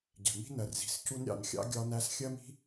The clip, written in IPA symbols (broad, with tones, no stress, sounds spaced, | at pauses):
ɟ ɛ̤˩ m i̤˦ n ɜ˩ r z i̤˩ s c u˦ n ɾʲ ɑ̰˨ n xʲ ɑ̰˥ ɡʲ ɒ˦ n æ˥ s xʲ ɜ˥ m i̤˥